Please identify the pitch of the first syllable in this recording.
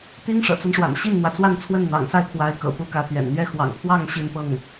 high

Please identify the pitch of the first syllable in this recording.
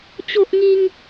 high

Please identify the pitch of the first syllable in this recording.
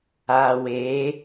low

